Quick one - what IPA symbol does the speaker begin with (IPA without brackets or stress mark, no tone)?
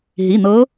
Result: ɦ